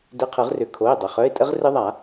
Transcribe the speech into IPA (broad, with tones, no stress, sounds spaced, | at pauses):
d ɪ˧˥˧ qʰ ɯ˨˩˦ ʁ r ʏ˨˩˦ kʰ o˩˧˩ ɪ̯ dˤ ə˩˧˩ χ œ˧˥˧ ɪ̯ tʼ ə˦˥ ʁ r ɪ˦˥ ðˤ a˨˩˦